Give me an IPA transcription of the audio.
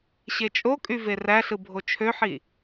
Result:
ɕ e t͡ʃʼ o kʼ y v e r æ ɬ ɯ bʱ o t͡ʃʰ ø ħ i

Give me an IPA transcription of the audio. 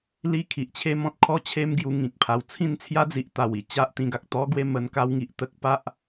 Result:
l i˦ kʰ i˨ ʔ t͡ɕʰ e˦ m ɔ̃˦ t̚ kʰ ɔ˦ t͡ɕʰ e˦ m ɡ j u˧ ŋ ĩ˨ k̚ pʰ a˨˩ w t͡sʰ ĩ˥˧ n t͡sʰ j a˦ d͡z i˨ ʔ t̪ a˨˩ w i˧ t͡ɕ a˦ ʔ t̪ ĩ˧ ɡ a˨ k̚ t̪ ɔ˦ ɡ w e˥˧ m ə˧ n k a˦ w ŋ i˨ ʔ t̪ ə˦ k̚ p a˦ ʔ

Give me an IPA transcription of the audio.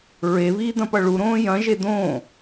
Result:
ɹ e β iː d̪ ɐ̃ p ʌ ɭ u ɾ õː j ɐ̃ ʒ e d̪ õː

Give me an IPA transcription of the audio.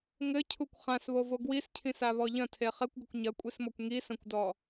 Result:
ŋ ɘ cʰ u kʷ χ ã s β o v o ɡ w i s cʰ ĩ s a β ɔ ʎ ɐ̃ tʰ e χ ɛ kʷ ɡ ɘ kʷ ɲ ɐ kʷʼ i s m ɔ kʷ ŋ i s ɐ̃ kʷ d ɔ

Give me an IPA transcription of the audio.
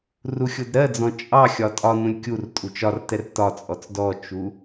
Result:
r u xʲ ʊ d ɾ ɜ d͡z ɔ̃ t͡ʃʼ ɑ xʲ ɒ tʼ ɒ n ũ lʲ kʲ u r tʼ u t͡ʃ ɒ r t ɛ r t ɒ t͡sʼ ɔ t͡s d ɔ t͡ʃ u

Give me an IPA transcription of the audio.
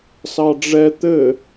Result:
s ɑ ɖ͡ʐ ɛ t̪ ɘ

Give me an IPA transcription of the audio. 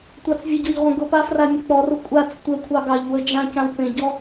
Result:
tʷ ɑ t͡s vʲ ə ɟ ɔ ʎ ʁʷ ə̃ ɡ ʊ p a f r a mʲ ʊ k͡p ɔ r ʊ kʷʼ a t͡s tʷ ə kʷʰ ɑ ɡ ɑ ʎ w ə d͡ʒ ã c ã w p ẽ ɟ ɔ

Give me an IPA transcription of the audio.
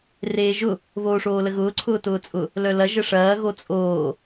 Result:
r eː ʒ ʊ | β oː ʂ oː l ə ɣ ʊː ǀʰ ʊː t ʊː t͡sʼ ʊ | l œ l ɐ ʒ ə ʂ ɐː ɣ o t͡sʼ oː

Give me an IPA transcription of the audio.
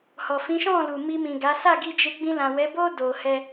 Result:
h ɔ˨ f ĩ˨˦ ʃ ɔ̃˦˨ l u˨ m i˧ m ĩ˨ ɡ a˨˦ s a˦˨ ɡ i˧ d͡ʒ e˧ ɡ͡b ĩ˧ l ã˨ w ɛ˨˦ b o˦ d o˧ h ɛ˦

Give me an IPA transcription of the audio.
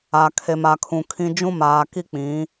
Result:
a˨ kʰ e˨ m a˨ kʰ ũ˨ kʰ ĩ˦ d͡ʒ ũ˦ m aː˨ k i˦ k͡p ĩ˨˦

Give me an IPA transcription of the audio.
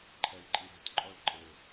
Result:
ǃʰ ɛ i̯ ǃʼ i ɾ e̤ t ǃʼ ɔ ɭ ǃʼ ɘ

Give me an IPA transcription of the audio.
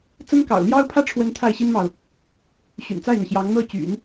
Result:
t͡s ə˥ n k ɑ̰˨˩ ʊ̯ l j ɑ˥ ʊ̯ pʰ ä˥ ʈ͡ʂʰ w ə˧˥ n t̪ʰ a˥˩ ɪ̯ ɕ i˥ n m ɑ˨ ʊ̯ | ɕ y̰˨˩ n t͡s a˥˩ ɪ̯ n̪ ɤ˩ ɕ j ɑ˧˥ ŋ n̪ ɤ˥˩ t͡ɕ y̰˨˩˦ n

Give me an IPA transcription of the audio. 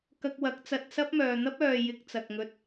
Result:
k ɐ˧ k̚ w ɐ˨˥ k̚ t͡s ɐ˧ t̚ s ɐ˥ p̚ m œː˨ n̪ ɐ˥ p̚ œː˨ j ɪ˧ k̚ t͡s ɐ˨ k̚ ŋ ɵ˧ t̚

